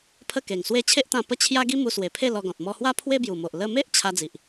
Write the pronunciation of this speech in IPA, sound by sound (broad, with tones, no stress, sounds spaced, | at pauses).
pʰ ə˥˧ k e˨˩ ŋ s w e˥˧ t͡ɕʰ e˦ ʔ t̪ ã˧ p ə˦ t͡ɕʰ j a˦ ɡ i˦ m u˧ s w e˨˩ pʰ e˥˧ l ɔ˧ ɡ ɔ̃˨ t̚ m ɔ˧ h w a˦ pʰ w e˦ b j u˨˩ m o˨ ʔ l ə˧ m e˦ ʔ t͡ɕʰ a˦ d͡z i˨ ʔ